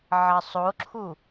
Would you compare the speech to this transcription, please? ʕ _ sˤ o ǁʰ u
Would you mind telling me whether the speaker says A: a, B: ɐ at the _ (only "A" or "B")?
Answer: B